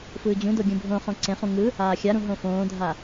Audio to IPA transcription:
f ɯː d͡ʑ ũ d o ɡʲ ũ bʱ õ χ õ ǀ ẽ χ ũ ŋ ɯ | aː xʲ a ɾ ũ ɦ õ f õː dʱ a

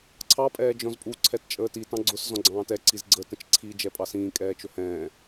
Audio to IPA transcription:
ǀʰ ɑ pʼ ɛː d͡ʒ ɔ̃ z pʼ u ǀʰ ɛ t t͡ʃʼ əː t i t ɑ̃ ɡ͡ǀ ʊ s z ɔ̃ ɡ͡ǀ ɑ̃ː t ɛ ǀ i z ɡ͡ǀ ə t ə̃ t͡ʃ ǀʰ i d͡ʒ ɛ pʼ ɑ s ĩː kʼ ɛː t͡ʃ ʊ h ɛ̃ː

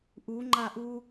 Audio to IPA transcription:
ʔ u ŋ͡ǃ a ʔ u

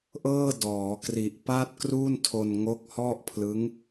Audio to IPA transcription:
ʔ ɤː˥˩ d ɔː˩˦ k r i˨˩ ʔ p a˥˩ t̚ k r uː˥˩ n tʰ o˧ n ŋ o˦˥ k̚ h ɔ˥˩ ʔ pʰ l ɯ˦˥ ŋ

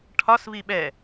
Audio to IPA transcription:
ʈʰ ɒ s v i ɓ ɛ

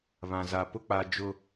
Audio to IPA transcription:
β ã˨ z a˨ p ʊ˦ k͡p a˨ d͡ʒ ʊ˨

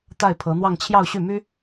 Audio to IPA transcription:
t̪ a˥˩ ɪ̯ pʰ ɤ˧˥ n̪ w ɑ˥˧ ŋ t͡ɕʰ j ɑ˥˧ ʊ̯ ɕ y˥˩ m y˥

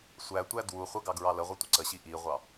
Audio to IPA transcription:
sʷ æ tʷ æ d w u χʷ ə ɡ ɑ ɡ ɹ ɑ l ə ʁʷ ʌ tʷ ə ǀ ə ɕ i ʔ i ʁʷ ɑ

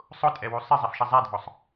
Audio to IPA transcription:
sˤ ʊ tʼ ɛ w u sˤ ɪ zˤ e f ʃ ɪ zˤ ɛ dʱ ɔ sˤ

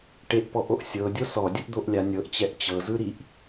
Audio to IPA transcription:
ʈ e ʔ p ɔ ʔ o ʔ sʲ ɤ dʲ o s ɔ dʲ ɯ ʔ d̪ o ʔ lʲ a nʲ ɤ ʔ t͡ɕ ɛ ʔ t͡ɕ ɤ z ɯ ɾ i ʔ

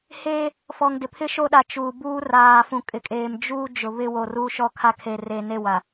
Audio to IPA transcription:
h eː˦ | f ɔ˨ ŋ d ɪ˨ pʰ ɪ˦ ʃ o˦ ɗ a˨ t͡ʃ uː˨ b uː˦ r aː˨ f ũ˨ kʼ ɪ˨ kʼ eː˨ m d͡ʒ uː˦ d͡ʒ ʊ˨ β ɪ˦ w o˨ r uː˦ ʃ ɔ˦ kʰ a˦ kʰ e˨ r e˨ n e˦˨ w a˨

